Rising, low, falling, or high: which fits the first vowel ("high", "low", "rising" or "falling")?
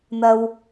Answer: low